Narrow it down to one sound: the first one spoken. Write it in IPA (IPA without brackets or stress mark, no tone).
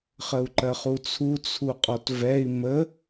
χ